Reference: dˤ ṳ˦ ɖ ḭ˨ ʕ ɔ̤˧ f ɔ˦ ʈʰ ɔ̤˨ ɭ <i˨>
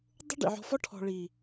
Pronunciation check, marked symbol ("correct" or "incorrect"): correct